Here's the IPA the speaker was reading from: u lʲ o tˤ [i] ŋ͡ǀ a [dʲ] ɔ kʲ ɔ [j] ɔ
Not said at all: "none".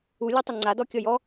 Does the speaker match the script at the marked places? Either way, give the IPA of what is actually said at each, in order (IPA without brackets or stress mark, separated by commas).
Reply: y, d, j